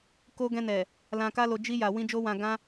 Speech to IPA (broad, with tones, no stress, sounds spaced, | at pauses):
k o˧ ɡ ɛ̃˧ n ɛ˨ | l ã˧ k a˦ l o˧ d͡ʒ i˧ j a˨ w ĩ˧ d͡ʒ o˦ w ã˧ ɡ ã˦